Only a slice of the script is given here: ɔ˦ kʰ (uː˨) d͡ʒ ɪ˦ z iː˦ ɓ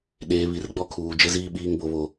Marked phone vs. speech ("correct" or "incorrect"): correct